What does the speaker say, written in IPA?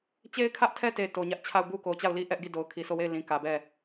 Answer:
t͡ɕe˦ɪ̯kʰä˦ʔtʰɛ˦te˨ to˨ɲä˦ʔ t͡ɕʰa˦˨ʊ̯bu˦ko˨t͡ɕa˦˨ʊ̯ li˦ʔɛ˦ʔɡi˦˨ do˨ʊ̯kʰi˨so˦˨we˦˨ɪ̯ lĩ˨kä˨bɛ˦˨

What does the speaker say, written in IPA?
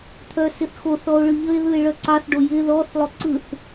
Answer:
t̪ʰœsɪθxoθɔo̯ ɭɯʎəe̯ðɯe̯ ɭœǀɑθɖo jɪ ðɔθlˠo ǀɯθ

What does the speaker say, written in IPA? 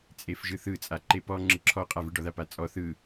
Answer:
t͡sʼefʒɯθɯ t͡sʼaǃepɔ ŋ͡ǁɯǁʰɔqʼavɯ ɖɔðapat͡sʼɔ θɯ

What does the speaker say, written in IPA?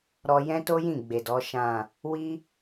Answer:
ɾɔ˧jɛ̃˦to˦jĩ˦˨ ɡ͡be˨dɔ˨˦ ʃã˦˨ | wi˦

